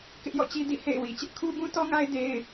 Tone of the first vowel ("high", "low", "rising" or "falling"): high